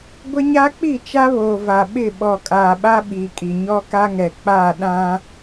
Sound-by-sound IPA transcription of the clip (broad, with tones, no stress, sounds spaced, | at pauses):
ɡʷ ɪ˦ ɲ a˦ k͡p i˦˨ t͡ʃ a˦ β oː˨ v a˨ ɓ ɪ˦˨ ɓ ɔ˨ kʼ aː˨ ɓ a˦ ɓ iː˨ kʼ i˨ ɲ ɔ˦ k a˦ ŋ ɛ˨ k͡p aː˦˨ ɗ ã˦